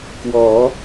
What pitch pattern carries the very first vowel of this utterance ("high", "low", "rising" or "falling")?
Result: rising